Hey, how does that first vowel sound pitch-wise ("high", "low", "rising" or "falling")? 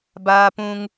high